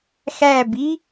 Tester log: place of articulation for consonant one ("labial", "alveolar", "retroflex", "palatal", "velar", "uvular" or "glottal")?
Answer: velar